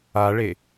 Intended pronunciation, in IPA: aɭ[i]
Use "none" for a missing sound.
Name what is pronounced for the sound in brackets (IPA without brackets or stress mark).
e